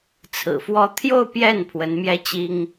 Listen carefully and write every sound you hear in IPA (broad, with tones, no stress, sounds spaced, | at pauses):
t͡sʰ ɹ̩˨˩ f w ɔ˥˧ t̪ʰ j o˥˧ ʊ̯ p j ɛ˥˩ n pʰ w ə˧˥ n m j ɛ˥ t͡ɕ i˥ ŋ